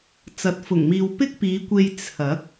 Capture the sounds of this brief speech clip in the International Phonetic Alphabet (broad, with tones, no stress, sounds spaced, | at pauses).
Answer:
t͡s ɐ˨˥ t̚ f ʊ˨˩ ŋ m iː˨ w p ɪ˥ k̚ p iː˨˧ kʷ e˧ j t͡sʰ ɐ˨˥ k̚